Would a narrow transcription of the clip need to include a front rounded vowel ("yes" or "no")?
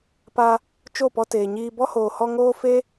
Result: no